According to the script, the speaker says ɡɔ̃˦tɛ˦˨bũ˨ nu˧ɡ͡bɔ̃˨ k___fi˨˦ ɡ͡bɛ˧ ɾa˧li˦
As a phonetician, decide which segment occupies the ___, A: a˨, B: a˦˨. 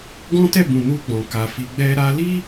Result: A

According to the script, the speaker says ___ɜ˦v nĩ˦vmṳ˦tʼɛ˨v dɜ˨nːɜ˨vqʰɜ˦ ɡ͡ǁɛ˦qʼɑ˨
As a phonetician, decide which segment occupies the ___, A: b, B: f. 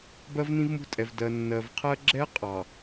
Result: A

